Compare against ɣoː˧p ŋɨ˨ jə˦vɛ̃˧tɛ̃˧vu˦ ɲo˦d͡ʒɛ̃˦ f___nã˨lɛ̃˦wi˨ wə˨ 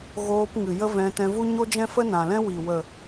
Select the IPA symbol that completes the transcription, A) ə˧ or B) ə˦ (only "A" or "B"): B